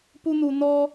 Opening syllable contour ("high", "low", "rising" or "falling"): high